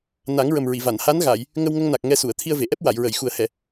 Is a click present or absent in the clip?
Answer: absent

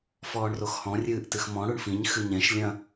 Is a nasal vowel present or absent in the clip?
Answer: present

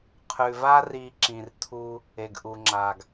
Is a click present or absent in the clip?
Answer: present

